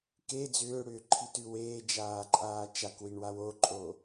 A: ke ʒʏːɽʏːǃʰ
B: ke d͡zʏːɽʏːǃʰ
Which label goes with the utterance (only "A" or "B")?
B